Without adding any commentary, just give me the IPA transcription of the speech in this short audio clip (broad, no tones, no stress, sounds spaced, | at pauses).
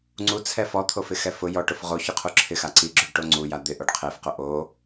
ŋ͡ǀ u t͡sʰ ɛ f ɔ t̪ʰ o f ɪ x ɛ f ʊ j ɔ ʈ ʊ f ʁ o ç ʊ qʰ u ǁʰ ɪ x a ǀ i ɡ͡ǁ u ɖ ʈ o ŋ͡ǀ u j a d̪ ɪ ʔ o ɖ qʰ e f q o ʔ o